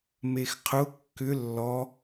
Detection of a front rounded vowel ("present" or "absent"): present